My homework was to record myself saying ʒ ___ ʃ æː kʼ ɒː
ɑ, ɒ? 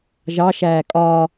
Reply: ɑ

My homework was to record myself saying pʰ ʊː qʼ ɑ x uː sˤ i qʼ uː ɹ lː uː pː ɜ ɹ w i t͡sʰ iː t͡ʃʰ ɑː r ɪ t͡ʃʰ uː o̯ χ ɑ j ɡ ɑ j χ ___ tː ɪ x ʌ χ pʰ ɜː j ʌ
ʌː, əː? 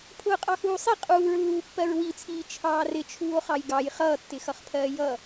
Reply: ʌː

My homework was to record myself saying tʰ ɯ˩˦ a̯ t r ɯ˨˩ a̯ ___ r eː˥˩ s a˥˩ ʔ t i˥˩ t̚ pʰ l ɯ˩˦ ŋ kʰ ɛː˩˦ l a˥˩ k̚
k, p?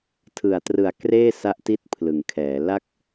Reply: k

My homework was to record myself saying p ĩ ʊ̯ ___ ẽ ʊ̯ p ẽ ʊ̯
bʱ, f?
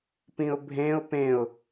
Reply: bʱ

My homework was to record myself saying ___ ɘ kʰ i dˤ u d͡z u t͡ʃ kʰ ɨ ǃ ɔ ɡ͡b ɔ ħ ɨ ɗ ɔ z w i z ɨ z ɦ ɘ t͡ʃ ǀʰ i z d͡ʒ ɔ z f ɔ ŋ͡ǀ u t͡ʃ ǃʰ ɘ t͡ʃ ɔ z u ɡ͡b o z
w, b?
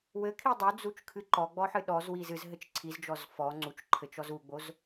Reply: w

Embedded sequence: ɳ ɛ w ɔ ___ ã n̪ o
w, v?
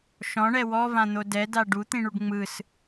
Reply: v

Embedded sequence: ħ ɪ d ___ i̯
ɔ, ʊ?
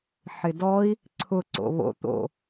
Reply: ɔ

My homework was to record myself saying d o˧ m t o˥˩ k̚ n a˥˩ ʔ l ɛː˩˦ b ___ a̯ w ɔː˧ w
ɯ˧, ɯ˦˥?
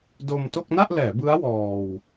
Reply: ɯ˦˥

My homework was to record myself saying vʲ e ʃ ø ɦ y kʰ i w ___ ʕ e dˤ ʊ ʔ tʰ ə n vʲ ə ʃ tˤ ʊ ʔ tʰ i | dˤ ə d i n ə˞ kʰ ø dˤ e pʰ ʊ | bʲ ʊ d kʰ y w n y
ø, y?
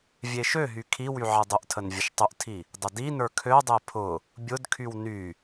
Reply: y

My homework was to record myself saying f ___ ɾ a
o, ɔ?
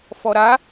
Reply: ɔ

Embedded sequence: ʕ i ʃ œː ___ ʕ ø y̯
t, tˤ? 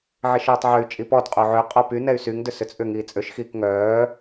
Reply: tˤ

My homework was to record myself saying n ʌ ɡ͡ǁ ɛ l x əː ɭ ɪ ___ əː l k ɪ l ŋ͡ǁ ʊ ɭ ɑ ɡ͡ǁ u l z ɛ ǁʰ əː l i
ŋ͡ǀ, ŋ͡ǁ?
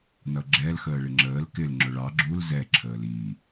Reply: ŋ͡ǁ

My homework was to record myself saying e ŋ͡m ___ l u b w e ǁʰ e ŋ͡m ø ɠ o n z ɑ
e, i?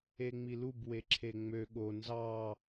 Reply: i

